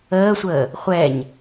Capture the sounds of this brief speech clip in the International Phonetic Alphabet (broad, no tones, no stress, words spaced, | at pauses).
əːsʷəː | χʷɛɲ